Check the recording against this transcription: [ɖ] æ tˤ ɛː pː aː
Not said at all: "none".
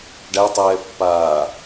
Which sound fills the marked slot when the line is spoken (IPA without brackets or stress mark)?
ɖ